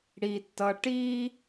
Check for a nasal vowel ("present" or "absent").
absent